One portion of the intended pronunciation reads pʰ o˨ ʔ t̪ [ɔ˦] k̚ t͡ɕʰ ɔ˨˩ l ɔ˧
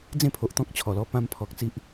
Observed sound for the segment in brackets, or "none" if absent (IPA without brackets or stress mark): ɔ̃˦